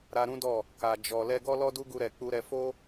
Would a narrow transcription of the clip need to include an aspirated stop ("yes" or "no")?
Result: no